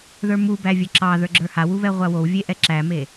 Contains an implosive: no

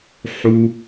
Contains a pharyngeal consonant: yes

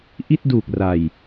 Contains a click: no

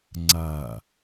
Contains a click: yes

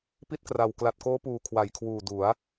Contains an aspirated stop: yes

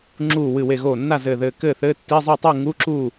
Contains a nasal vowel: no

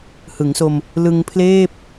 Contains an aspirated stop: yes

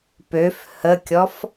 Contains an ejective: no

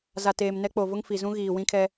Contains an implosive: no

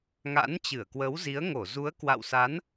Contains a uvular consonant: no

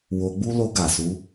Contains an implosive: no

